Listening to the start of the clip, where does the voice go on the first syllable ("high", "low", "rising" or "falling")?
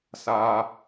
high